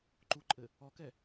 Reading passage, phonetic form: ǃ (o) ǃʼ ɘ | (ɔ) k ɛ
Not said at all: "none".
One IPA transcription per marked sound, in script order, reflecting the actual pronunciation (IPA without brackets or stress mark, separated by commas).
u, ɔ